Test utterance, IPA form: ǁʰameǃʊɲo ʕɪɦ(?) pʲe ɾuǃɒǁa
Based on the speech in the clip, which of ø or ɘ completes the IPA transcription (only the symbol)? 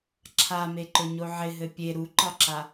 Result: ɘ